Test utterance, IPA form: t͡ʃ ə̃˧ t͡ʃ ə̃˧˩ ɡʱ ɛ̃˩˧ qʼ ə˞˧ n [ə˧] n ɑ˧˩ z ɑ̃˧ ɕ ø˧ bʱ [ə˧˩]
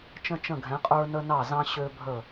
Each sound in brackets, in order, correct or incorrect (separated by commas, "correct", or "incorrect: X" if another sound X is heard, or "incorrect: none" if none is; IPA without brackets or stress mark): correct, correct